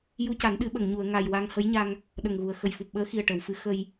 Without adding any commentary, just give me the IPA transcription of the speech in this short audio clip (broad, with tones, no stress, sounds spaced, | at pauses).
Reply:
j u˧ c a˨˩˦ n ɗ ɨ˨˩˦ ɓ ə˨˩˨ ŋ ɲ u˨˩˨ ə̯ ŋ a˨˩ j w a˧ ŋ h ə˧˥ j ɲ a˧ ŋ | ɗ ə˨˩ ŋ ɣ u˨˩ ə̯ x ə˨˩ j f u˨˩ p̚ ɓ əː˧˥ x i˨˩ ə̯ ʈ ə˨˩˨ w f ɨ˧˥ x ə˧ j